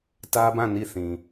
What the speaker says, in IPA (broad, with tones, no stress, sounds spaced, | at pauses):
t ä˦ b ã˦˨ n i˦˨ θ ĩ˨